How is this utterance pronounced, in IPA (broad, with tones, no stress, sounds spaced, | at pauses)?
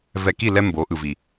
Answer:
v ɛ˨ k i˦˨ l ɛ˦ m b o˨˦ ʔ ɯ˨ v i˨